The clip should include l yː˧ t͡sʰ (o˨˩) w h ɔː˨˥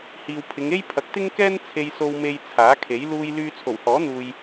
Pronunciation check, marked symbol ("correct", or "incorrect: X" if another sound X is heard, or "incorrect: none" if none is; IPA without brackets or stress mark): correct